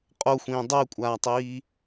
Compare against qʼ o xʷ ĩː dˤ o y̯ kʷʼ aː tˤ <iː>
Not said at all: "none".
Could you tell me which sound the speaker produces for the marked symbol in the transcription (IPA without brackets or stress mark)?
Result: iː